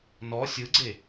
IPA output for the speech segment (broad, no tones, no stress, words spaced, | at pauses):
nɔ sʲɯɡ͡ǀe